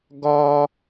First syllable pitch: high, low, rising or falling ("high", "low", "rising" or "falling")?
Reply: high